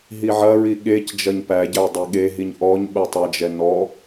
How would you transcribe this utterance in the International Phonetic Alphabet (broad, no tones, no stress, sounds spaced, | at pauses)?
ɦ i ʕ ɐ ɹ i ɠ e c d͡ʒ ɐ ɲ p æ ɟ æ dˤ e ɠ e ɦ i ɲ ʔ ɔ ɲ ɓ ɛ tˤ ɐ d͡ʒ ɛ n ɔ